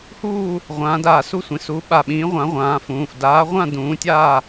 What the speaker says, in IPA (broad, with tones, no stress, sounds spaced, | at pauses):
h uː˥˨ | ʁʷ ãː˨˥ d aː˧˩ s u˥˨ sʷ ĩ˩˧˩ s u˨˥ ɓ a˧˩ ɓ ĩː˨˥ ʁʷ ã˨˥ ʁʷ ãː˨˥ f ũː˩˧˩ f d aː˨˥ ʁʷ ã˥˨ d ũː˨˥ tʲ aː˥˨